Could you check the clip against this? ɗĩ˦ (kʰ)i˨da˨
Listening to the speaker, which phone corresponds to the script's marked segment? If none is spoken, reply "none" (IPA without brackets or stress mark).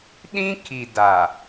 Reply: kʰ